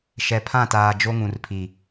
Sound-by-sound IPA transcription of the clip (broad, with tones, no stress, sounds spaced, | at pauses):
ʃ ɛ˨ pʰ ã˦˨ t aː˨ d͡ʒ o˦ ŋ ũ˨ r pʰ i˨